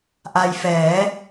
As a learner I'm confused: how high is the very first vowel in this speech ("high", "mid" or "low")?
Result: low